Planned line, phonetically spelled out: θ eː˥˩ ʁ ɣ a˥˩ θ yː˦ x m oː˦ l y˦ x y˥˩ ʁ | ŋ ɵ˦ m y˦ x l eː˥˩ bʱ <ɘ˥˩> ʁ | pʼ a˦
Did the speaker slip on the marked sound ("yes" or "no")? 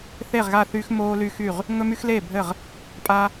no